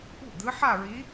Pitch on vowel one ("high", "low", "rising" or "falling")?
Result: falling